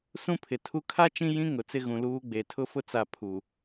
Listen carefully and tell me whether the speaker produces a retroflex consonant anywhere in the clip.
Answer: no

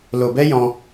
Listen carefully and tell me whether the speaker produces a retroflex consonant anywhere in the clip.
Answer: no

